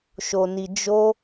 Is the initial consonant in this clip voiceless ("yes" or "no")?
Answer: yes